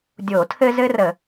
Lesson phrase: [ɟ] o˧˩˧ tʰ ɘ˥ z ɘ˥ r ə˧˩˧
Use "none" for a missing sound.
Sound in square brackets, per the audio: dʲ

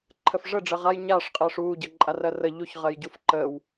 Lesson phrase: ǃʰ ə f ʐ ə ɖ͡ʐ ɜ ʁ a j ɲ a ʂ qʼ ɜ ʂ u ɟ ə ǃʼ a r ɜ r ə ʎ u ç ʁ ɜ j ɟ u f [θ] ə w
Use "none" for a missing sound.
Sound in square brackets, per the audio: ǃ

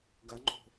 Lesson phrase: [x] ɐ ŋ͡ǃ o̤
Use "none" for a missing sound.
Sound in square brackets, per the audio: ɡ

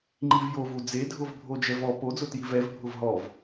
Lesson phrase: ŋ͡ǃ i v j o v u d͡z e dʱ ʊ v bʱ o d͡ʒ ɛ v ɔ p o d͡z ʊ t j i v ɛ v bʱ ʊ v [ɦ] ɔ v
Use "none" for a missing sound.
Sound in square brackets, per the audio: ɦ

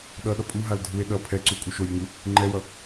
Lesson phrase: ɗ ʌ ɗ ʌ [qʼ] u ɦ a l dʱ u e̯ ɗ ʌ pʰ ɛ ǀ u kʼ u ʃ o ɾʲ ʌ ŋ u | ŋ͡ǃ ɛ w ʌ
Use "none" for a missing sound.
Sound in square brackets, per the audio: pʼ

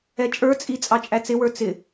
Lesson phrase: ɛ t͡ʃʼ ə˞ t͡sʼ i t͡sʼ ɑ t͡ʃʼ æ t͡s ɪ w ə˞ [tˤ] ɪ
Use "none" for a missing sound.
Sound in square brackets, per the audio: t͡s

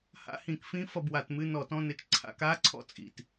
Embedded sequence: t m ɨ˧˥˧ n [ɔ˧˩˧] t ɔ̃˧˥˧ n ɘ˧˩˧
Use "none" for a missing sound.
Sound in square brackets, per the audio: ɔ˧˩˧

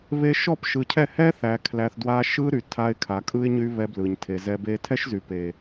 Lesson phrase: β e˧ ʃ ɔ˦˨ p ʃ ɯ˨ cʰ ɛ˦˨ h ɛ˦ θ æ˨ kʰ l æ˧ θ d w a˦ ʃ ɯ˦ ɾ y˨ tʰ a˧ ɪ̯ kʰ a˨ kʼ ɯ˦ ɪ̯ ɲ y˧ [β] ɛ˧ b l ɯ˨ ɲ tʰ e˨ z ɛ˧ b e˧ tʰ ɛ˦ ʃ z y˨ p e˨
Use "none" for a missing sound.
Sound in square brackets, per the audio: β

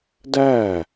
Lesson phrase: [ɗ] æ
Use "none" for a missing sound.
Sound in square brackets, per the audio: d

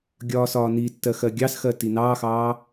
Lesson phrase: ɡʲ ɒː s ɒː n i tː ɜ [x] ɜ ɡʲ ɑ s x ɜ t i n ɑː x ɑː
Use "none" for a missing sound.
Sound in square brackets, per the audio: x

